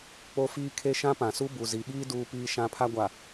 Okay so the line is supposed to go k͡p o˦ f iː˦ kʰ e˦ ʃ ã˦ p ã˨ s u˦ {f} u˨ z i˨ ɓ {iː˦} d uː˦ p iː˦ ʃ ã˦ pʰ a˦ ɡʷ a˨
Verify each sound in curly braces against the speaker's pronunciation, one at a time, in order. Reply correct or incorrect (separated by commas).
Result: incorrect, correct